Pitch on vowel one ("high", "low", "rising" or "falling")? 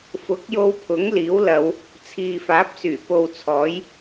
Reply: rising